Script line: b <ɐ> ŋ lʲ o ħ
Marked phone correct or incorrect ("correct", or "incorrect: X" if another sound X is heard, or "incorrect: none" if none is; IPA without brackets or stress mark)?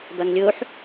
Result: correct